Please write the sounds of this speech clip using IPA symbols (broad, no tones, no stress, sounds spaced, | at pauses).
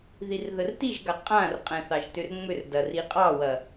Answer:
ð i r ð ə r t i ʒ ɡ a qʼ ã r qʼ ɛ̃ θ ɑ ʒ t ʏ r ŋ͡m ʏ r d ɐ r i qʼ ɑ w ɐ